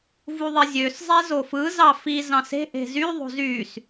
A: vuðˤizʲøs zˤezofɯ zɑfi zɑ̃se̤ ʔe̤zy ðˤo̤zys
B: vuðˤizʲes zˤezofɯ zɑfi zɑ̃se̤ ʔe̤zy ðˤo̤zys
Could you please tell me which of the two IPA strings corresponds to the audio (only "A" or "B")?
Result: A